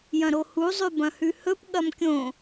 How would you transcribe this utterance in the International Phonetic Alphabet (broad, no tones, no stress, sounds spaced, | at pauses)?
j ɐ̃ ɾ o h u zˤ ʉ b ɐ̃ h ʉ h ɵ p ɠ ɐ m kʲ õ